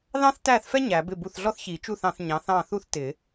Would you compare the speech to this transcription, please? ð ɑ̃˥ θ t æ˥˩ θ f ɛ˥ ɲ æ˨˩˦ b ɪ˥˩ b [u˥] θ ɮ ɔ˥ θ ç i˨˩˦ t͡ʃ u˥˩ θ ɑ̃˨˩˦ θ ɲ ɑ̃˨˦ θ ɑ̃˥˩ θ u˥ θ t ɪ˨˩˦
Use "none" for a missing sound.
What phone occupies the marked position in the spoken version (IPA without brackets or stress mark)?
u˥˩